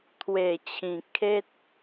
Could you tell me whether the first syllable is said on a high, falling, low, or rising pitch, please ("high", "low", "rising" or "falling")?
low